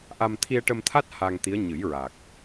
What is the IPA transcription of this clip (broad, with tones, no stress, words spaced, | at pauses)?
ʔa˧m t̪ʰi˧ə̯ʈə˧mt̪ʰa˦˥t̚ ha˧ŋt̪i˧˥ə̯ɲɨ˨˩˦jɹaː˨˩k̚